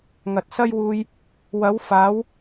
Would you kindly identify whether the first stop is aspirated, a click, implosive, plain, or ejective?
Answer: plain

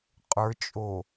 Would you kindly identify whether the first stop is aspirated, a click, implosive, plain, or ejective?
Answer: ejective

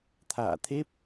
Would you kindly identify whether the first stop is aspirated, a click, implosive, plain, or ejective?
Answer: aspirated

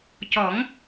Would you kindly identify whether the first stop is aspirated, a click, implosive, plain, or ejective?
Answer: plain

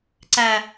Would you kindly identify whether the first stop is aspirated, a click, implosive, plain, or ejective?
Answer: click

